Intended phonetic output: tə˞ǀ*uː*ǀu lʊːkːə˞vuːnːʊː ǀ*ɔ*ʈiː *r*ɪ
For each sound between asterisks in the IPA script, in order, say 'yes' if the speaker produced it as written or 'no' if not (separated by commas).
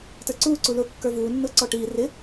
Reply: yes, yes, yes